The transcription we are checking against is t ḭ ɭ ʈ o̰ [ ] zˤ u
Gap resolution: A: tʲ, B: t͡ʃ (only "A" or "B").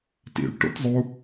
A